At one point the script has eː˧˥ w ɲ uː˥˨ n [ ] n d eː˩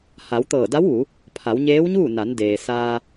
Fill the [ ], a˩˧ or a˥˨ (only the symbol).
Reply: a˩˧